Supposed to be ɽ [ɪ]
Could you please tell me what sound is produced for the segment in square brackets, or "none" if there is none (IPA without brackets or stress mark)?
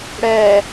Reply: ɛ